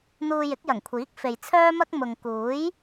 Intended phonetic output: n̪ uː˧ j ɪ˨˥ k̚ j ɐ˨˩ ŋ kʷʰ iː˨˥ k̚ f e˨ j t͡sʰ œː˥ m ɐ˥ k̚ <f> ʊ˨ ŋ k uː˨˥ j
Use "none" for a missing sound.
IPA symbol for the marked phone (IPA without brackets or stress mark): m